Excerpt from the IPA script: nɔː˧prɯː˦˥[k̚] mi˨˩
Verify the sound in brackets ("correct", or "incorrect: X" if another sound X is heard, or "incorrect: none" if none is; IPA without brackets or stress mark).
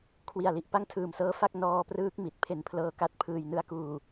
correct